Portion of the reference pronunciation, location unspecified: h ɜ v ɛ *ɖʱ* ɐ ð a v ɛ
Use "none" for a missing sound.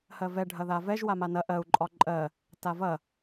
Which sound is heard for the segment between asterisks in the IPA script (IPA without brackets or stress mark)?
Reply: ɖʱ